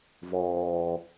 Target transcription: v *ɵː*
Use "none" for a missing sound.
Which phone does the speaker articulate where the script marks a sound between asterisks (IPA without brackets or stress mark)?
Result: ɔː